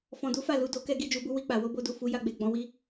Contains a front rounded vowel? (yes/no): no